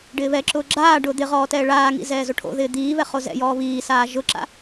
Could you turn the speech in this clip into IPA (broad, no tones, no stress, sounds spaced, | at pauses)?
ɖ ɪː β ɛ ǁ ʊː ɡ͡ǁ aː ɖ ʊː d̪ ɪ ʁ ɔː t ɛː ɭ aː ŋ ḭ z ɛː z o ʈʰ o̰ ð ɪː d̪ iː β ɛ χ o z ɛ̰ j ɔː β iː s aː ʒ ʊ ǁ a̰